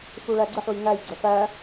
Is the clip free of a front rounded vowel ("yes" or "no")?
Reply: yes